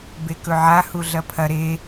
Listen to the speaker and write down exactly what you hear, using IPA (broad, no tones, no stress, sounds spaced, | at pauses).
b e k ɵ ʕ a h u ɮ ɐ pʰ ɐ ɾ e